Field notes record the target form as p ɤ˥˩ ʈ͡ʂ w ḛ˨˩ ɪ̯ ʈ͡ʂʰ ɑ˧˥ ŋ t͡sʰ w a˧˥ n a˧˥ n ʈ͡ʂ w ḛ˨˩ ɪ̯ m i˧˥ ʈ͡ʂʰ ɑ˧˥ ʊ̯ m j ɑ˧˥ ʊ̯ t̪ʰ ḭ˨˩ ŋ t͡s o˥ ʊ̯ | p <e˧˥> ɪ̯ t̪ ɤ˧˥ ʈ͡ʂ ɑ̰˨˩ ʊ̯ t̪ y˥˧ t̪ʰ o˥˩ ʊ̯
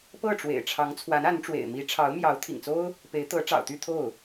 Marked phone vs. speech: correct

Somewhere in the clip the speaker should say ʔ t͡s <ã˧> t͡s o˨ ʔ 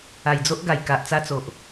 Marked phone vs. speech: incorrect: a˧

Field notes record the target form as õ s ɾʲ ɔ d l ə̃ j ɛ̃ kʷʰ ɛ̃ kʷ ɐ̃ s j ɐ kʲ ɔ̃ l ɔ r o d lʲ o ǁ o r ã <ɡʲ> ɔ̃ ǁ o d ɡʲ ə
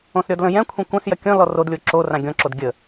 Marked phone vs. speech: correct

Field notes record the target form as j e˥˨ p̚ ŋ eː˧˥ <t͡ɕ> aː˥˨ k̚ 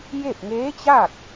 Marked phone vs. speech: correct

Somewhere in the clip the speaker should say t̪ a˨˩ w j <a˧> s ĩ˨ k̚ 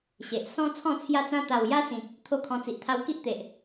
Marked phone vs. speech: incorrect: a˦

